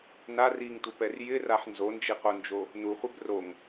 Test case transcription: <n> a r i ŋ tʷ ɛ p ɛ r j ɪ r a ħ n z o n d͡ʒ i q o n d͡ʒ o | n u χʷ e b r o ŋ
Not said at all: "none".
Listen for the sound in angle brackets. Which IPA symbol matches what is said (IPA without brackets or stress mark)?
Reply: n